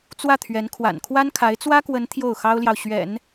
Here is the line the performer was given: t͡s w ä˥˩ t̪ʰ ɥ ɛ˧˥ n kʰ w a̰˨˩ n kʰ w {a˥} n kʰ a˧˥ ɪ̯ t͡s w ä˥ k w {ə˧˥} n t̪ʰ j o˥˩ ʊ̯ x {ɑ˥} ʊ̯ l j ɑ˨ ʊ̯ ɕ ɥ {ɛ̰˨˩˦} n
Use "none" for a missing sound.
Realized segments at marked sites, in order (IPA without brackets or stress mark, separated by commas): a˥, ə˧˥, ɑ˥, ɛ̰˨˩˦